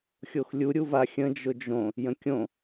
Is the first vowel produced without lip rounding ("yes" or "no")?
no